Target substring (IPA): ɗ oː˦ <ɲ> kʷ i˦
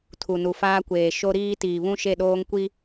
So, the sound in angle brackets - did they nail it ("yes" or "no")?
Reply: no